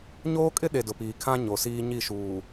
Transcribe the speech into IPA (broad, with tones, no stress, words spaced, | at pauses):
ɲoː˦kʼɪ˦ ɗe˨dʊ˨piː˨ kʰã˦ ɲo˨siː˦ ɲi˦˨ʃuː˨